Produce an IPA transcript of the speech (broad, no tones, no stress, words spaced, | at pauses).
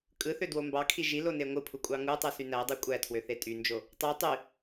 kʼɯθødwo mbɑkʰi ʒilone ŋʷɯpʰukʷʼɑ ŋutˤɯsy nædˤy kʷʼætʰwøθe tʼynd͡ʒo | tˤu tˤy